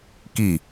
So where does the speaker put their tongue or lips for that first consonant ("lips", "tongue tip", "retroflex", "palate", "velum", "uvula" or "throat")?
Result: velum